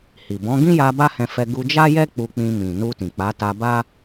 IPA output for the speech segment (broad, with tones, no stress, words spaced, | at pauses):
hi˨bɔ̃˨˦ ɡĩ˦ja˧ ba˦hɛ̃˧fɛ˧ ɡu˧d͡ʒa˦jɛ˦ k͡pu˧k͡pĩ˧mĩ˨ nu˧tĩ˨ k͡pa˨˦ta˧ba˦